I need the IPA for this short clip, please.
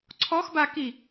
ǀʰ ɔ x b a k i

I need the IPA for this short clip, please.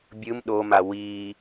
bʲ ɯ m ɗ o m a w i

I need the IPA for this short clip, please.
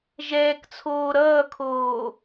ʒ ɛː k t͡sʰ oː ɾ ʌː kʰ oː

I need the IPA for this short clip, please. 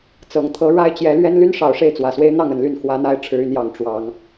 t͡s ɤ˨˩ ŋ t̪ʰ ɤ˨˦ ɻ a˦ ɪ̯ t͡ɕ j ɛ˨˦ l ɥ ɛ˦ n l y˦ n ʂ ɑ˨˩ ʊ̯ ʂ e˥˨ ɪ̯ t͡s w ä˨˩ s w e˦ ɪ̯ n̪ ɑ˥˨ ŋ ə˥˨ n l y˥˨ n x w ä˨˦ n̪ a˨˦ ɪ̯ ʈ͡ʂʰ ɻ̩˨˦ y˧ n j ɑ˨˩ ŋ ʈ͡ʂ w ɑ˨˦ ŋ

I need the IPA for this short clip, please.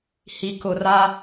h i˨ k ʊ˨ r a˦

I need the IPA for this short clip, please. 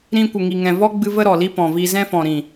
ɾ ĩ˧ kʷ ə˨ ŋ i˨ ŋ ɛ̃˨ v ɔ˦ ɡ͡b ɨ˧ v ə˦ ɾ ɔ˨ l i˦ p ɔ̃˨ v i˧ z ɛ̃˦ f ɔ̃˨ ɾ ĩ˨

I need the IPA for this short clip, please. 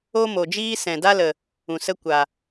o˦ m o˨ d͡ʒ iː˦ s ɛ̃˨ d a˦ l ə˨ | ũ˨ s ə˦ kʷ a˨

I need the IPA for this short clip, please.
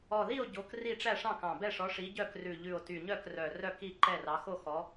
ɔ˨˩ ð i˦˨ o̯ ɟ o˨˦ k r i˦˨ ʈ͡ʂ æ˦˨ ʂ ɑ̃˦˨ k ɑ̃˨˩ b ɛ˦˨ ʂ ɔ˨˦ ʂ i˨˦ ɟ œ˦˨ k r ʉ˨˩ ʎ ʉ˨˩ o̯ t y˨˩ ɲ œ˦˨ k r œ˨˩ r œ˦˨ k i˦˨ ǃ ɛ˦˨ r ɑ˨˦ x o˦˨ x ɔ˨˦

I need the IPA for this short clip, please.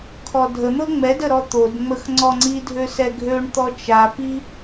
kʰ ɔ dʱ ə n̪ ɤ ŋ͡m ɛ d ə ɾ ɔ t̪ o d ŋ͡m ə x ŋ͡ǀ ɔ ŋ͡ǀ i dʱ ø s ɛ ɡʱ ø ɳ t̪ ɔ t͡ʃ a p i

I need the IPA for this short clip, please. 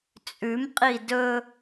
t͡sʼ ʉ m qʼ i d ɵ

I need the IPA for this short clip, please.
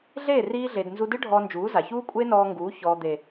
ɮ eː˦˨ r iː˧ ɮ e˨ d n z u˧ d ɨ˦ ɖʱ ɔː˧ n d͡ʒ uː˨˦ z a˨ ç uː˦ kʷʼ eː˦ n ɔː˧ ŋ ɡ uː˨˦ ç ɔː˨ d̪ e˨

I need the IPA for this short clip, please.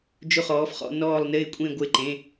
d͡ʒ ʊ˧˩ χ ɔː˩˧ f χ ɔ̰˩˧ n ɔː˧˩ lˠ n ɪː˥˩ kʷʼ ẽ˥˩ ɡʷ ɪ˧˩ ǃ ẽ˩˧˩

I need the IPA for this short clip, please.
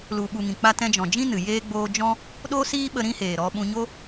l u˨ ɓ u˨ ŋ ĩ˨ k͡p a˧ t ɛ̃˧ d͡ʒ ɔ̃˨ d͡ʒ ĩ˦ n ɨ˨ j eː˧ ɡ͡b oː˧ d͡ʒ ɔ̃˦ | ɗ o˦ s iː˦ ɓ ə˧ ɾ ĩ˦ h eː˨ ɾ ɔ˧ ɓ ũ˧ ɲ o˦

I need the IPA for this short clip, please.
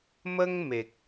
m ə˦ ŋ m e˨ k̚

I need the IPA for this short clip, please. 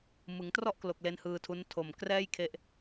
m ɯ˩˦ ŋ t r ɔ˥˩ ʔ k l o˨˩ k̚ l e˦˥ n h ɯː˧ tʰ u˦˥ n tʰ o˨˩ m k r ɛː˥˩ j kʰ e˦˥ ʔ

